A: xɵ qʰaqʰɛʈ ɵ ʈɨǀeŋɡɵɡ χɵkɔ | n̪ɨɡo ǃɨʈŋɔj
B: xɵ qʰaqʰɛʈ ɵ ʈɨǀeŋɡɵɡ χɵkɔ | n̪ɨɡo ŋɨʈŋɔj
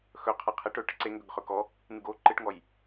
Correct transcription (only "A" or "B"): A